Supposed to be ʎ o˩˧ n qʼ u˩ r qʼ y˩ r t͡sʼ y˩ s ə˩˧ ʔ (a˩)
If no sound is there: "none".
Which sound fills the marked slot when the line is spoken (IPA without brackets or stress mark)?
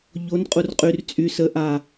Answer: a˩